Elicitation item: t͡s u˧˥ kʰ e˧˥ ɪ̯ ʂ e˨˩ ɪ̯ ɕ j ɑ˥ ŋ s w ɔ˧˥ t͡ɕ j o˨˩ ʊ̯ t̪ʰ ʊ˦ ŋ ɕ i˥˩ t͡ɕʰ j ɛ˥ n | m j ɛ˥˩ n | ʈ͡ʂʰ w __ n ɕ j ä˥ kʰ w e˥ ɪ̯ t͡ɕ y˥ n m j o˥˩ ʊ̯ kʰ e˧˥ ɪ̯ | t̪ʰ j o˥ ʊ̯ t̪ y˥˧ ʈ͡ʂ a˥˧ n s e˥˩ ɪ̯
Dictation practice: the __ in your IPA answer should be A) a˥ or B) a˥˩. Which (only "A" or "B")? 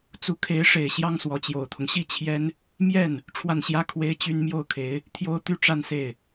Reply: B